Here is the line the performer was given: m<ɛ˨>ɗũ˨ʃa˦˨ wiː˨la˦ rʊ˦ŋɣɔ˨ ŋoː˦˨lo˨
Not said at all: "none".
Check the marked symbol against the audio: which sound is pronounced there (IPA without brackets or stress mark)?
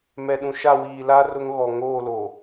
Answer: ɛ˨